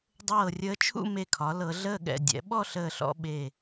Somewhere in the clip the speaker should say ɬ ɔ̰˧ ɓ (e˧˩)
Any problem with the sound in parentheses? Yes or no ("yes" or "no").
no